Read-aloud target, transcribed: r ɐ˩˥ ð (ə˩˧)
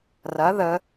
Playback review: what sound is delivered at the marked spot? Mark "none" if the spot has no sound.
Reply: ə˩˧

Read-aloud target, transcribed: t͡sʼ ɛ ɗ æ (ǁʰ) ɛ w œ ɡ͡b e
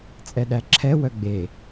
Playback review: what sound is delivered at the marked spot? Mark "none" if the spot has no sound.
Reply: ǁʰ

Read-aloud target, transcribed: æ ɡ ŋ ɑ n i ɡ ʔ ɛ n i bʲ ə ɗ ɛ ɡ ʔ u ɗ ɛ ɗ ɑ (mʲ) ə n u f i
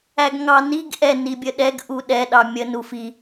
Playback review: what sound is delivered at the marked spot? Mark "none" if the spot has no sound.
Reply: mʲ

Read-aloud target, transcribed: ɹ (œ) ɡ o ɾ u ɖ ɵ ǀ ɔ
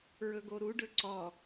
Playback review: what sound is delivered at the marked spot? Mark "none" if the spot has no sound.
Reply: ɵ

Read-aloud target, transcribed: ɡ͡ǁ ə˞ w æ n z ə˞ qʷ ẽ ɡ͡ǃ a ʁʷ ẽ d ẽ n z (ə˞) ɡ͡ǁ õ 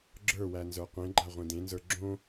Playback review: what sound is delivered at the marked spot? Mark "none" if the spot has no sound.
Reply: ə˞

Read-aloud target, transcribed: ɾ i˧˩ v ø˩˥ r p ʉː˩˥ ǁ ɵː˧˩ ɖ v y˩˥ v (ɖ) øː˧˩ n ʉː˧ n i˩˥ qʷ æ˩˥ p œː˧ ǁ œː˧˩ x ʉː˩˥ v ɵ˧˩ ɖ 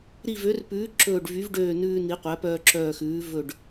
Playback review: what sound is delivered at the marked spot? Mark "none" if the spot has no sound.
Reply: ɖ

